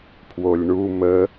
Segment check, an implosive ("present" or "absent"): absent